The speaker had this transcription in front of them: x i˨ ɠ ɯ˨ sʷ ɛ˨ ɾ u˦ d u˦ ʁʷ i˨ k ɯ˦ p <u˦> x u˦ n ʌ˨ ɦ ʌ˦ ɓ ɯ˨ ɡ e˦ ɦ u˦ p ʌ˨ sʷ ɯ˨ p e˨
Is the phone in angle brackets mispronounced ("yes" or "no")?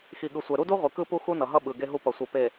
no